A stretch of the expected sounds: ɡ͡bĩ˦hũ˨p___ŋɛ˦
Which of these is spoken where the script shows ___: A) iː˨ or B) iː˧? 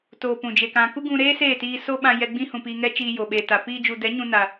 B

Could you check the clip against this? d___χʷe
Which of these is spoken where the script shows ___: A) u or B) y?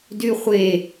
B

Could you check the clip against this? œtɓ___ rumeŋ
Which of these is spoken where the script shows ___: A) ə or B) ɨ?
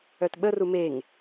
A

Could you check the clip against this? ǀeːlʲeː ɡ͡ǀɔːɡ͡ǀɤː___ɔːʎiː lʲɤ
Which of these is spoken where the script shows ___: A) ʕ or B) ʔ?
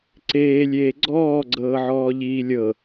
A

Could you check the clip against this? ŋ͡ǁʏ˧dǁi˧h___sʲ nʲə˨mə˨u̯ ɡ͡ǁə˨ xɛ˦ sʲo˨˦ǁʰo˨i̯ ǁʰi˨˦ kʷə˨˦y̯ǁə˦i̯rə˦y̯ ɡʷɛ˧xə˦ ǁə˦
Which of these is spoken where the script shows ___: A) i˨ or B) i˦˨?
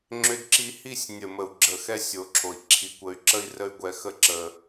B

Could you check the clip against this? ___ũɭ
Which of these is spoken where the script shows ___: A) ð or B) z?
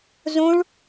B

